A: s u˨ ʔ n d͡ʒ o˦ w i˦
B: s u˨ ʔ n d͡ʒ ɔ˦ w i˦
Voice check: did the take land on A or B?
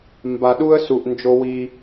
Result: A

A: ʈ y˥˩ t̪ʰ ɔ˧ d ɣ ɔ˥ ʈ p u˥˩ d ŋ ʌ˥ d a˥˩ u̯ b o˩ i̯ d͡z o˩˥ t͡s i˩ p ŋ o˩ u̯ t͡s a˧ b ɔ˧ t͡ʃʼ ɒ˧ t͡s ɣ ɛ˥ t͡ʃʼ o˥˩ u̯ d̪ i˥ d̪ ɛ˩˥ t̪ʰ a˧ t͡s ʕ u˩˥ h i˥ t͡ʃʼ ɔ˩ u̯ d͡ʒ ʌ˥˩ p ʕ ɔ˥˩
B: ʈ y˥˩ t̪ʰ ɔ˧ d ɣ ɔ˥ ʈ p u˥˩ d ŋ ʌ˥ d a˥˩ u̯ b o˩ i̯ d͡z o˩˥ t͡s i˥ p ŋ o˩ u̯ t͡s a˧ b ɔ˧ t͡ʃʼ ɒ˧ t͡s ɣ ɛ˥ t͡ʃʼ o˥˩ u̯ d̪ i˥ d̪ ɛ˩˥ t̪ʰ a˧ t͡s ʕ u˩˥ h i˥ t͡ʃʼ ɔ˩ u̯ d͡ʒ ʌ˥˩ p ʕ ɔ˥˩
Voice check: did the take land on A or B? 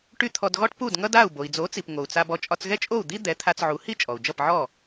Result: A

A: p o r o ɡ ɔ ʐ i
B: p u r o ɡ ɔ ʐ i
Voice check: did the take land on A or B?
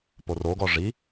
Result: A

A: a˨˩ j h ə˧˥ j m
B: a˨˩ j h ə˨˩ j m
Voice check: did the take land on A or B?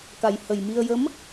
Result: B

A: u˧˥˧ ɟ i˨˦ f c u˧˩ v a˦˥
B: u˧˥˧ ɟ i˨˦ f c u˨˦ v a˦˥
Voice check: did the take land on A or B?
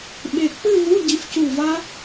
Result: A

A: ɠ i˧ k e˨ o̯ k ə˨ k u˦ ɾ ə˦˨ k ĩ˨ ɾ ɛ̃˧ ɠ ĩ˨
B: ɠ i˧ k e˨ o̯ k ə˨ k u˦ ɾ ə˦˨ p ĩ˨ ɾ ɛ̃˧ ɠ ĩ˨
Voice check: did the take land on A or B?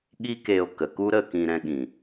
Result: A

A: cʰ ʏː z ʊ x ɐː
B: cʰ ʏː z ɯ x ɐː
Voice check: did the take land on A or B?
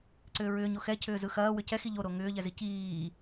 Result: B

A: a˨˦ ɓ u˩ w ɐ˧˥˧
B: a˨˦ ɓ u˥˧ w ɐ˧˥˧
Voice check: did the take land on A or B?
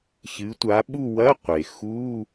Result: B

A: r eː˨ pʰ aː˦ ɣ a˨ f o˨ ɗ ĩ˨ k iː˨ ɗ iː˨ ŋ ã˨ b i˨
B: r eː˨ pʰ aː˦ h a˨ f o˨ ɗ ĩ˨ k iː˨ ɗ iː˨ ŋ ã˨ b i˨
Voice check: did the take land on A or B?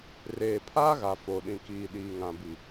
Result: A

